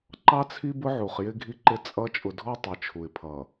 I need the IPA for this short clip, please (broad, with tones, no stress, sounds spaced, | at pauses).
ǃ ɑ˦ t͡sʰ i˦ b ʊ˦ ʕ u˨ χ j ɪ˦ ɡʱ i˦ ǃ ɪ˦ t͡sʼ ʌ˦ t͡ʃʼ ʊ˨ dʱ ɔ˦ tˤ ə˨˦ t͡ʃʰ u˨ ɪ̯ pʰ ʌ˨